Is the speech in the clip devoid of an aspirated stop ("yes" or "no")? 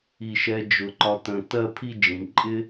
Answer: no